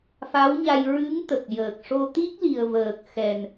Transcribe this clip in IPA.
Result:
fa˧˥wɲa˧j ɹɨ˧˥ŋ t̪ə˨˩k̚jəː˨˩k̚ ʂo˧t̪i˦˥k̚li˨˩ə̯vəː˨˩k̚ xɛ˨˩n

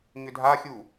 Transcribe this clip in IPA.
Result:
ɲʏdʱaxʲu

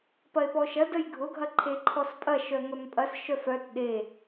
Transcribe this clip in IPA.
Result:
pɐe̯pɔʃɐ dəjɡʱʊ ɡʱɐǃʰeǃʰɔspʼɐ ʃœŋœmpʼɐs ʃœfœt ɗe

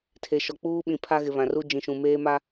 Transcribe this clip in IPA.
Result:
tʰe˨ʃɔ˨ k͡puː˦ɓĩ˨ pʰa˦ɣɪ˨βã˨ru˦ d͡ʒĩ˨ʃũ˨ meː˦ma˦

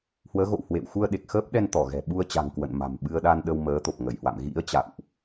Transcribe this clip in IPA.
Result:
hwəː˨˦ɣo̰˧˨w hwḛ˧˨wxu˧ə̯ ɗe˨˩k̚xəː˦˥p̚ɗɛ˧n t̪ɔ˧˩ɣɛ̤˨˩ɓu˧ə̯t͡ɕa̤˨˩ŋ kwə̰˧˨nma̤˨˩m ɓɨ˧ə̯ɗa˧nɗə˧w məː˨˦t̪o˨˩p̚ ŋə˧˩jhwa̰˧˨mɣḭ˧˥ə̯ t͡ɕa̰˧˨wʔ

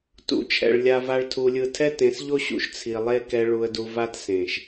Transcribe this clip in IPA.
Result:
tṵ˨t͡ʃʰɛ̰˨ɭ lʲa˧va˦ɭtʰu˧lʲɯ˦˨ tʰɛ˦tẽ˨˦sʎo˦ɕṵ˧ʃ t͡sʰi˨lˠe˦ kɛ˧ ɭu˧ə̯du˧ va˦tsẽ˨ʃ

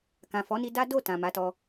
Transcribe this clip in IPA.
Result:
kã˨fɔ˨˦ni˧ da˦do˦˨ tã˨ma˨˦tɔ˧

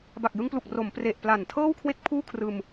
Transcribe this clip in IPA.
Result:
ba˨˩k̚jɯ˧ŋplu˨˩k̚ ro˩˦mpre˨˩ʔ pla˨˩ntʰɤː˥˩w kʰwe˥˩k̚pʰuː˥˩kʰrɯː˧m

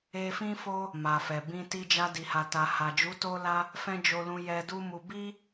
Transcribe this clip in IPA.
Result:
e˧fĩ˦fo˦ | ma˨fɛ˨bĩ˧ ti˧d͡ʒa˧di˨ha˨ ta˨ha˨d͡ʒu˨˦ to˦la˦ | fɛ̃˦d͡ʒo˧lũ˧jɛ˧ du˦mu˧ bi˦

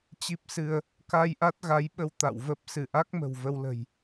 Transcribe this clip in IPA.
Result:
t͡ɕi˦˥p̚sɨ˧ə̯ | ka˧jʔa˦˥t̚ɣa˨˦jɓə˧w t̪a̰˧˨wvə˦˥p̚ sɨ˧˩ʔa˦˥k̚ mə̤˨˩wvə˧w lə̤˨˩j

